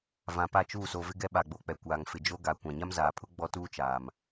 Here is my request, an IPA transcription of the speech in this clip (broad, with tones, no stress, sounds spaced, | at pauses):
v ã˨ p a˦˨ t͡ʃ uː˦˨ s o˨ v ɪ˦ ɡ ɛ˦ ɓ a˨ ɡ͡b o˨ k͡p ɛ˨ kʷ aː˨ ŋ f ɪ˨ d͡ʒ o˦ ɡ a˨ kʷ ã˨ ɲ a˦ m z aː˨ pʰ ʊ˦ ɡ͡b ɔ˦ t uː˦ t͡ʃ aː˨ m